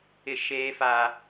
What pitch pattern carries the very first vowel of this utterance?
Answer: high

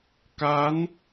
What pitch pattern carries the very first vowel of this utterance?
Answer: rising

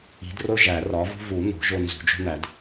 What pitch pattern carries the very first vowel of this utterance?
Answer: rising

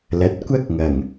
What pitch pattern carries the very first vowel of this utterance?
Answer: rising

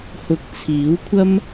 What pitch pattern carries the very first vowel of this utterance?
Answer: low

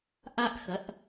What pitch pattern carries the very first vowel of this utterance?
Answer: high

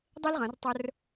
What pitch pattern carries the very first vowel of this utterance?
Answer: high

